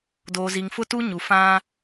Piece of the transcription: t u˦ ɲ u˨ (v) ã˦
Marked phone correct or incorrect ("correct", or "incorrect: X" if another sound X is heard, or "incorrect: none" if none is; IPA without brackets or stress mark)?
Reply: incorrect: f